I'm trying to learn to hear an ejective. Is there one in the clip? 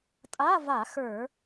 yes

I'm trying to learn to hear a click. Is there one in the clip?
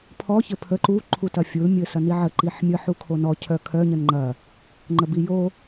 yes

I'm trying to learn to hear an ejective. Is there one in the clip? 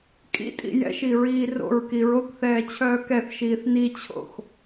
yes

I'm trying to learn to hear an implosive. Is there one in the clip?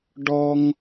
no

